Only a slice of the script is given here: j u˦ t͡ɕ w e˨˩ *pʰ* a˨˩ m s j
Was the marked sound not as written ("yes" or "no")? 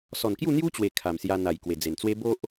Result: yes